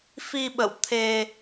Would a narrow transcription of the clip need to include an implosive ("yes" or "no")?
yes